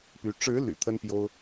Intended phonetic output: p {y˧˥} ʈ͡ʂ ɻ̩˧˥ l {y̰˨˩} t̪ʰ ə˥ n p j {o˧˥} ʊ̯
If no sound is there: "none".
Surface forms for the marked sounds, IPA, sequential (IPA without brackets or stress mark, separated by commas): y˧˥, y̰˨˩, o˥